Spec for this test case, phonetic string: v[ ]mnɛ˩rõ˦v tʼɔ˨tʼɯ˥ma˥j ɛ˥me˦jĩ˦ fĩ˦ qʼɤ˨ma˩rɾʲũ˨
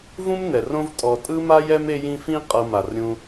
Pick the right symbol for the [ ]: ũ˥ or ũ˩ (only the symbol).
ũ˥